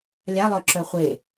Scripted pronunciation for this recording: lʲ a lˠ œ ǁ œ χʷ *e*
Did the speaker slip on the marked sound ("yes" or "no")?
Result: no